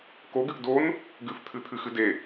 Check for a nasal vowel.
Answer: absent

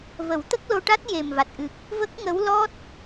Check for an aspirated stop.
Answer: absent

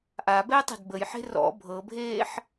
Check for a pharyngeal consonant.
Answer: present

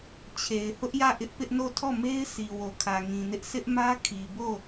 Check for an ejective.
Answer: absent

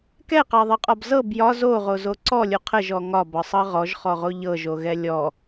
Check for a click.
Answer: present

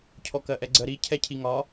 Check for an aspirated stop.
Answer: present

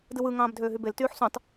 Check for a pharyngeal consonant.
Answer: present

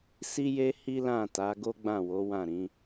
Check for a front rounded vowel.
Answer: absent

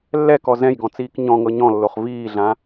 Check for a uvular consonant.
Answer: present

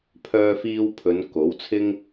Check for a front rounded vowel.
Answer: present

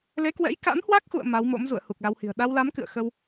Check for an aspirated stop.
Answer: absent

